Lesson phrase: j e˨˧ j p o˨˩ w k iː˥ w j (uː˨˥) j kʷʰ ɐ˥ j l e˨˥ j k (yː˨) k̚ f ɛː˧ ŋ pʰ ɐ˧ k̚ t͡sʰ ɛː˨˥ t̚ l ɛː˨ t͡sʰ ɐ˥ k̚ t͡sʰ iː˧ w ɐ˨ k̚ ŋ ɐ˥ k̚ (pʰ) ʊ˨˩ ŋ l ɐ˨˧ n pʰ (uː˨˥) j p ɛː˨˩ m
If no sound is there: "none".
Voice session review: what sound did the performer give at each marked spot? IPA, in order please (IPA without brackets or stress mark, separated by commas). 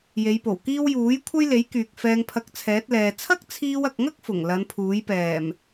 uː˨˥, yː˨, f, uː˨˥